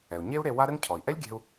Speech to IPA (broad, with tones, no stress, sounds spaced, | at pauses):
ɛ˩ u̯ ɲ e˥ u̯ ɾ e˧ w a˥ ɾ ɘ˥ ŋ cʰ ɔ˩ i̯ ʔ ɛ˥ lʲ ɡʲ ɛ̤˧ u̯